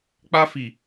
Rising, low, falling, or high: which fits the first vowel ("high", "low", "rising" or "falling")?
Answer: high